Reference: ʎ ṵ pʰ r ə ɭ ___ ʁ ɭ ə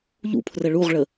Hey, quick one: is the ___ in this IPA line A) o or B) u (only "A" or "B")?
B